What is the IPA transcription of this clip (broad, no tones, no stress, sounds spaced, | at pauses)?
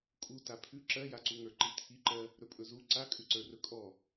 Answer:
kʼ u t a pʰ ʉ ǁ ɜ j a ǀ u ŋ ə˞ ǃ i t̪ʰ i ǃ ɜ | ɾ ɵ pʼ ɵ z u ǀ a kʼ ʉ ǀ ə˞ r ɵ kʼ ɔ